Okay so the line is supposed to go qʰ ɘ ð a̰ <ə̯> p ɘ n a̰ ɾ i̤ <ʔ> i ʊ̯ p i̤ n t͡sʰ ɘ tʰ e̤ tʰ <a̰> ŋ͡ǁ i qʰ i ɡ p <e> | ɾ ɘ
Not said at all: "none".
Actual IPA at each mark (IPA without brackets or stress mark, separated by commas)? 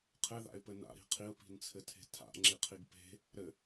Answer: ɪ̯, qʰ, a̰, e̤